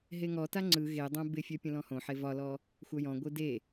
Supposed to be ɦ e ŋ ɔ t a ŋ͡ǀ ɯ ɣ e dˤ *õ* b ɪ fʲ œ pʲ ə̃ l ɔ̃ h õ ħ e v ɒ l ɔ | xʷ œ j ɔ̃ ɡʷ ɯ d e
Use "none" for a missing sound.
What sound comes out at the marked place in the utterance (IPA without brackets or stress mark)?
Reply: õ